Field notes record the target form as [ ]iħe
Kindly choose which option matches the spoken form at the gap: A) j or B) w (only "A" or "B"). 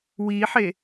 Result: B